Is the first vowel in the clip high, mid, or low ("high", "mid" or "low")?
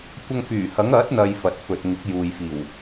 low